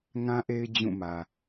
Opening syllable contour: high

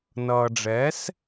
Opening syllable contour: low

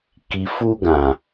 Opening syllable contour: low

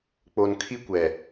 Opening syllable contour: low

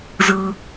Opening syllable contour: high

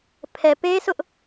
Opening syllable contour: low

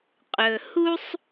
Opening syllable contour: low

